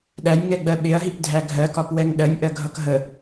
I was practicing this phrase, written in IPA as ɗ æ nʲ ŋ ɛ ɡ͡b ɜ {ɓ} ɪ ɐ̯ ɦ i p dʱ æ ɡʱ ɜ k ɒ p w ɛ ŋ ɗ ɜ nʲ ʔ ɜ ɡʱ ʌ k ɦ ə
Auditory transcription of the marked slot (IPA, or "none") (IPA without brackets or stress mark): ɓ